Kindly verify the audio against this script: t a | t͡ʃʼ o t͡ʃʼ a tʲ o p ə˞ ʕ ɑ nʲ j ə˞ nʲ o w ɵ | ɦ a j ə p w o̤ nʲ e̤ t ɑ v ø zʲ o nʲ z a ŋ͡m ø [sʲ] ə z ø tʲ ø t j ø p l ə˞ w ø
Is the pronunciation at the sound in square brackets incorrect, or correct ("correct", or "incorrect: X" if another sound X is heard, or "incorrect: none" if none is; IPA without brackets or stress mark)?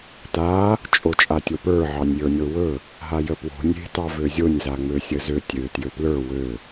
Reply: correct